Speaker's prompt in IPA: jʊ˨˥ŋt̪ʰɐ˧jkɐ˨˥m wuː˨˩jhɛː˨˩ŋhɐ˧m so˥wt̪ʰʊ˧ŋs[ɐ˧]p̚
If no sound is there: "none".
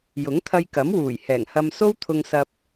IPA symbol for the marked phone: ɐ˧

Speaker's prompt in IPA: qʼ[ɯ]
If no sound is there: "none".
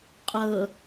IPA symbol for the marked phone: ɤ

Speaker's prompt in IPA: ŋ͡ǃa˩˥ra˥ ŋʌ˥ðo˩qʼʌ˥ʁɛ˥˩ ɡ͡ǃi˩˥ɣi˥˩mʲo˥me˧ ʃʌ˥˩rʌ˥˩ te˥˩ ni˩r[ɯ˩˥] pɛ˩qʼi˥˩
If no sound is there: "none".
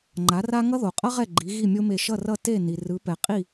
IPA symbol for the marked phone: ɯ˩˥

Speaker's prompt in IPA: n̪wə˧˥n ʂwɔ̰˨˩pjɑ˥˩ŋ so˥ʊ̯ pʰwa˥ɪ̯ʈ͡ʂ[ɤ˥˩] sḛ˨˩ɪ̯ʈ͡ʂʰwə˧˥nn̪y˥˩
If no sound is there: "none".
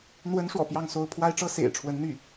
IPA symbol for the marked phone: ɤ˥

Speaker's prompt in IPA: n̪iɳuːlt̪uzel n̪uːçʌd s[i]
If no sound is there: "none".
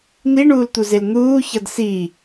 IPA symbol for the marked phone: i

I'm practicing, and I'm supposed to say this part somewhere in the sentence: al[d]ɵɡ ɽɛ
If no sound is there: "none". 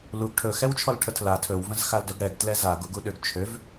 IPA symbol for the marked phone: d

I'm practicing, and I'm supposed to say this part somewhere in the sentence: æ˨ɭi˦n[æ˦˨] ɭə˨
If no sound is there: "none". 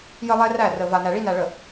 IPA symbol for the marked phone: æ˨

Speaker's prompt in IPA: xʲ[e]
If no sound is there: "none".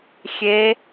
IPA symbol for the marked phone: e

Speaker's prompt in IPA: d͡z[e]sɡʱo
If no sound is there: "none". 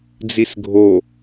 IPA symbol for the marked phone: i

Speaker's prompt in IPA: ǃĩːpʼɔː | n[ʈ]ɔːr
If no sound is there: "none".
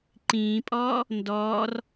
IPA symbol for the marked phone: d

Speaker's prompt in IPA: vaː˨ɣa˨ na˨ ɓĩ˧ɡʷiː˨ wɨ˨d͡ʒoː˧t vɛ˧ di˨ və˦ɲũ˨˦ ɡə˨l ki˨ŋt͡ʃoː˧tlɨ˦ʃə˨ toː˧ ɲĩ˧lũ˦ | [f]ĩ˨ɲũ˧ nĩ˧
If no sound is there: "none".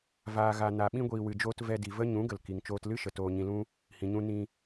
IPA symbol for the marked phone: h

